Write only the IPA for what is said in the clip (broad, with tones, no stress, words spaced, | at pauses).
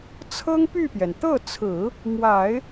t͡sʰɤ˥ŋpy˥˩pjɛ˩n t̪ɤ˥˩t͡sʰɹ̩˨˩˦ | mwa˨˩˦ɪ̯